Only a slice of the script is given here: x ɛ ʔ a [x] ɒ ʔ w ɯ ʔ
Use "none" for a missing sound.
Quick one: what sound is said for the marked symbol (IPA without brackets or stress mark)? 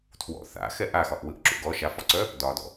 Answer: x